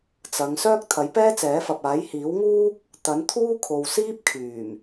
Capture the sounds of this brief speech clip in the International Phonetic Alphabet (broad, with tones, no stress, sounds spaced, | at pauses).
t͡s ɐ˨˧ ŋ s œː˥ k̚ t̪ʰ ɐ˨˥ j p ɛː˥ t͡s ɛː˨˥ f ɐ˨ p̚ aː˨˥ j h iː˨˥ w ŋ uː˥ k̚ | t̪ ɐ˨˥ n t̪ʰ uː˥ kʰ o˨ w s iː˥ p̚ kʰ yː˨˩ m